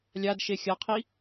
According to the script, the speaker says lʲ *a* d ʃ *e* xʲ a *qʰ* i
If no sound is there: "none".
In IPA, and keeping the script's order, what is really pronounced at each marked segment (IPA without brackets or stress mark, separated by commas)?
a, e, qʰ